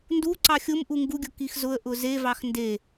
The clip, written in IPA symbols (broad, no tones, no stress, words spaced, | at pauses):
ndu ǀɑxʲʊmʔu ŋɡuɡʲʊ kixzʊə̯ʔʊ zevɑx nde